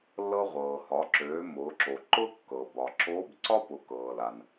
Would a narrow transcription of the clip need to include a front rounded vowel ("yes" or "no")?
yes